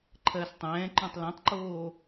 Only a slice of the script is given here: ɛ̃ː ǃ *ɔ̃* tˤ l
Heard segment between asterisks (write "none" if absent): ɔ̃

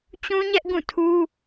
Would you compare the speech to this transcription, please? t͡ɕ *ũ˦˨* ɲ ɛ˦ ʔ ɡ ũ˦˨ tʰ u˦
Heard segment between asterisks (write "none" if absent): ũ˦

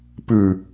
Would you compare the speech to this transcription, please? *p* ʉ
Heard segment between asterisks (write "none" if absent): p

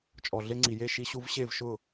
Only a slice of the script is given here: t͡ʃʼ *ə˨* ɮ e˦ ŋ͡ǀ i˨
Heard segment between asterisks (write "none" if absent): ɔ˨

